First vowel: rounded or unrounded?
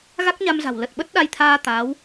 unrounded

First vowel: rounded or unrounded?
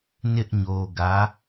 unrounded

